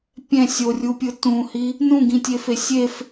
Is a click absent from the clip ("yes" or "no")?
yes